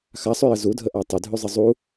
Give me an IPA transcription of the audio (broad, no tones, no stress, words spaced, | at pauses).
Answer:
xasˤʉjə zudʱəʔa tˤʉdʱʉzˤə zˤu